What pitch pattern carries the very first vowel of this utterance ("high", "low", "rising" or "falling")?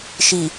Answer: low